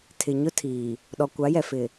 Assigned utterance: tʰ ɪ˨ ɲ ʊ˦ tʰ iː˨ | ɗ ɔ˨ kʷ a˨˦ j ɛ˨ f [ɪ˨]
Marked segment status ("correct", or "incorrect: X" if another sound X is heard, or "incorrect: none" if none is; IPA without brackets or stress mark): correct